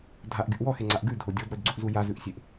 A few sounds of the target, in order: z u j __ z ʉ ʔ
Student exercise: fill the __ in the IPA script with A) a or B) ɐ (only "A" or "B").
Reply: A